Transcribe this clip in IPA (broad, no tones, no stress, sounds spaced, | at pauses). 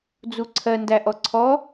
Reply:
d͡z u ǀʰ ɜ n d æ ʔ ɔ ǀʰ ɔ